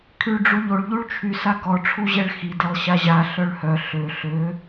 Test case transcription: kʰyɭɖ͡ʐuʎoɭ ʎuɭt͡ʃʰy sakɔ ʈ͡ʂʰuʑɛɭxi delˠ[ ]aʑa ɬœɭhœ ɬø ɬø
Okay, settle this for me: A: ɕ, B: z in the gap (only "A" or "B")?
A